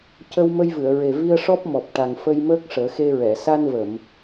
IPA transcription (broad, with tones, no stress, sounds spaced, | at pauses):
c ə˧ w m ə˧ j v ɨ˨˩˨ ə̯ ɹ e˨˩ v i˧ ə̯ ʂ ɔ˦˥ p̚ m ɔ˨˩ p̚ ʈ a˨˩ ŋ f ə˧ j m əː˦˥ k̚ ʂ əː˨˩˦ x e˧ ɹ ɛ˨˩˨ s a˧ n v ə˨˩˨ m